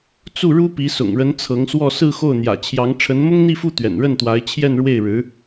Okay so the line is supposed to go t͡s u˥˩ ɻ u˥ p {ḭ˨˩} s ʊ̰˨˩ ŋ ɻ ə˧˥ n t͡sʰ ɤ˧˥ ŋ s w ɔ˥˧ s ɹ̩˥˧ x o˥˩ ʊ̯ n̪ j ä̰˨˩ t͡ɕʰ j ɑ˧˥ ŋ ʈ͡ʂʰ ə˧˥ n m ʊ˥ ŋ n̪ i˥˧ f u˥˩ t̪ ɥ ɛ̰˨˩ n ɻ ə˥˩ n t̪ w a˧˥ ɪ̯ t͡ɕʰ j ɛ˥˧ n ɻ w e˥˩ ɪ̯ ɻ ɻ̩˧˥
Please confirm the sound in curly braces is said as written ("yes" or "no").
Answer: no